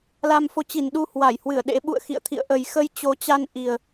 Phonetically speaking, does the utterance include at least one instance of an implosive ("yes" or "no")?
yes